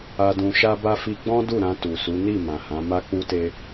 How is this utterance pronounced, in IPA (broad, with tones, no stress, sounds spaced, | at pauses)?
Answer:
a˧ d ũ˧ ʃ a˦ b a˦ f i˧ ɡ͡b ɔ̃˦ d u˦˨ ɾ ã˧ t u˨ s u˨˦ n i˦˨ m ã˨ h ã˨˦ m a˦ k͡p u˦ t e˦